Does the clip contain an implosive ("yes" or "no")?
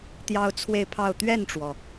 no